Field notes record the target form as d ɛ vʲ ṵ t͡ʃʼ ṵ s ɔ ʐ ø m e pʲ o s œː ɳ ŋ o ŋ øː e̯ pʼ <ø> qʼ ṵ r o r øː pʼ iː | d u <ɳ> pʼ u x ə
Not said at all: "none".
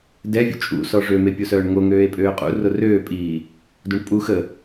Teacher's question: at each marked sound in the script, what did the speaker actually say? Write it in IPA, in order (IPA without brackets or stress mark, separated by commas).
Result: øː, ɳ